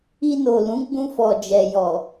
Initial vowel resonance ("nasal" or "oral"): oral